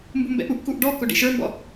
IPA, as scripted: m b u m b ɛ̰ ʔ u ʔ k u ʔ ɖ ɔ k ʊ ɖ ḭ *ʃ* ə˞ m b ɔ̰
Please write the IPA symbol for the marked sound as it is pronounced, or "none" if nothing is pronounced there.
ʃ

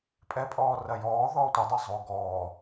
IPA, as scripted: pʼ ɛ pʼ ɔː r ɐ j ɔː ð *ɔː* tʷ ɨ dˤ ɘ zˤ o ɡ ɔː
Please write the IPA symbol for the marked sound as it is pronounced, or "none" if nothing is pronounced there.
ɔː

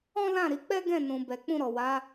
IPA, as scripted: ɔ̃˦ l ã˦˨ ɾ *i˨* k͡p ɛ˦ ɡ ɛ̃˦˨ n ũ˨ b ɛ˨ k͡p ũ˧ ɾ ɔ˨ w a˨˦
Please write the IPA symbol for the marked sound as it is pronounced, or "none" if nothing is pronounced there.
i˨˦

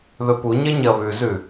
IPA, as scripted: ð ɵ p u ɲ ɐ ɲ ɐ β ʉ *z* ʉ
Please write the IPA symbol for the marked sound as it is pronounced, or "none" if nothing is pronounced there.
z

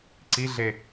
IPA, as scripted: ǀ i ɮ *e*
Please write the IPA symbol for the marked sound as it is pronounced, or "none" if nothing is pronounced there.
e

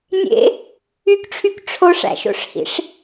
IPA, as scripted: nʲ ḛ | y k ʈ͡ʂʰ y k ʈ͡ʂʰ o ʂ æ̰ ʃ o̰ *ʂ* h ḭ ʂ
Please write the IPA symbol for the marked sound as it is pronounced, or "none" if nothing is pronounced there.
ʂ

